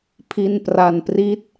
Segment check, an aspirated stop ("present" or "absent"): present